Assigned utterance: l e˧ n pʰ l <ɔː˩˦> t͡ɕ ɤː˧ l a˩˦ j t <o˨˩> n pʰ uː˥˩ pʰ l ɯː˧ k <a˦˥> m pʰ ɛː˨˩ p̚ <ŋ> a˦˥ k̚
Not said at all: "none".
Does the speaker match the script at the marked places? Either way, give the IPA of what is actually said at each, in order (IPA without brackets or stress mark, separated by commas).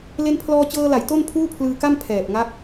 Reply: ɔː˧, o˥˩, a˥˩, ŋ